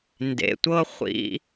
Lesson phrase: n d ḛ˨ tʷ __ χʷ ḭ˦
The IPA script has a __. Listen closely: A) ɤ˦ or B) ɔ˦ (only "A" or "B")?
A